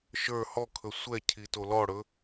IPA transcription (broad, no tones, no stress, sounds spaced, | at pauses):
ʃ ə˞ h ɔ kʰ ɵ sʷ ɛ cʰ i t o l ɔ ɽ ɵ